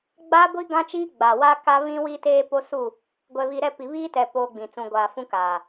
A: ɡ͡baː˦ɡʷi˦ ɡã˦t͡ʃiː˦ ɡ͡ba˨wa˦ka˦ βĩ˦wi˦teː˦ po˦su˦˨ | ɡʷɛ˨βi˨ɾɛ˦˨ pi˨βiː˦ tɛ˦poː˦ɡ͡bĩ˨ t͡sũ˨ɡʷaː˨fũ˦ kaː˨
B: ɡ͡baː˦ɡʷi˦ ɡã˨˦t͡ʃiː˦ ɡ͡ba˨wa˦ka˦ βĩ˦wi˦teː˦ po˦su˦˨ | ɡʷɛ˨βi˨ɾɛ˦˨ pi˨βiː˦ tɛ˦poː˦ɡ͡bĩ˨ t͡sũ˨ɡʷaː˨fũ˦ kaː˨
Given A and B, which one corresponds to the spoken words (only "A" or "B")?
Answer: A